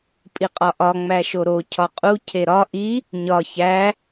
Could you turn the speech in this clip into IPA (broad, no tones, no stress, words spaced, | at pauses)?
pʼiqʼɒʔɒ ŋ͡mæʃoɾo cʰɒqʼu cʰeɾɒ ʔi | ɲɒ çæ